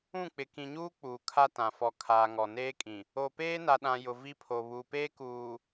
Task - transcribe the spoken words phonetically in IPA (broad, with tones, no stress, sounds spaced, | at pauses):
ũ˦˨ k͡p ɪ˨ k ĩ˨ ɲ uː˦ k͡p uː˨ kʰ a˦ t ã˨ f ɔ˨ kʰ aː˨ ŋ ɔ˨ n eː˦ kʼ ĩ˨ | o˨ p eː˦ n a˨ ɗ ã˨ j ʊ˨ v i˦ pʰ o˨ β uː˨ p eː˦ k uː˨